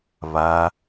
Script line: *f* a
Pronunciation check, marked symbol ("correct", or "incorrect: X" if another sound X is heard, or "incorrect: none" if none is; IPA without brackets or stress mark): incorrect: β